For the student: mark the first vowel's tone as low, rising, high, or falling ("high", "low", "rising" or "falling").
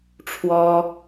high